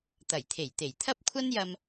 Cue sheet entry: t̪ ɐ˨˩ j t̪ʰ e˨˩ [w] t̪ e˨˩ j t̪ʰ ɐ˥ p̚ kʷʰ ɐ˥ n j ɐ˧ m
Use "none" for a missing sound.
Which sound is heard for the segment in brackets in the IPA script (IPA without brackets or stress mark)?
j